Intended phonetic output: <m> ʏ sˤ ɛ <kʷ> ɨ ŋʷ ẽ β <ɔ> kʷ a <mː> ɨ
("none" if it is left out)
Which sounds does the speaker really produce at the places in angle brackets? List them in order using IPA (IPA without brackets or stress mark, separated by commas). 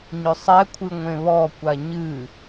ɲ, kʷʰ, ɔ, ɲ